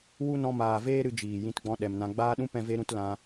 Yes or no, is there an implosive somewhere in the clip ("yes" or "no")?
yes